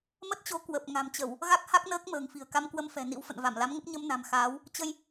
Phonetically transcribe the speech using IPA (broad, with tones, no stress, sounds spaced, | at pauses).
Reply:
m ə˦˥ t̚ t͡ɕ o˨˦ k w ə˨˩ p̚ ŋ a̤˨˩ m t͡ɕ ə˧˩˨ w | ɣ a˦˥ k̚ h a˦˥ k̚ n əː˦˥ k̚ m ə̤ː˨˩ ŋ f i̤˨˩ ə̯ k a˧ m k w ə˧ m f ɛ̤˨˩ n ḭ˧˥ w f ə̰˧˨ n v a˧˩ m l a˨˦ m ŋ ə˦˥ p̚ ɲ ə˧ m n a̤˨˩ m x aː˨˦ w | t͡ɕ ə˧ j